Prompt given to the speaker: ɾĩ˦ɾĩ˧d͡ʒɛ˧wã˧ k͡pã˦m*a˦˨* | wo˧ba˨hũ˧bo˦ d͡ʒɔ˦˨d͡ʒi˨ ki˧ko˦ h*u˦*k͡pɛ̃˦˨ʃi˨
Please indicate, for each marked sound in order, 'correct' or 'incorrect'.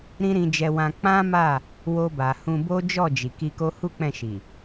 correct, correct

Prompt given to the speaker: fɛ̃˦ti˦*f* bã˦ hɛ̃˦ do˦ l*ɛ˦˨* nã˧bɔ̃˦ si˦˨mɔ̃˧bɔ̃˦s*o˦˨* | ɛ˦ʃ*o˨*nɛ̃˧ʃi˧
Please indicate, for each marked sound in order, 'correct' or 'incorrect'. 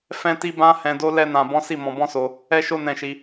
incorrect, incorrect, incorrect, incorrect

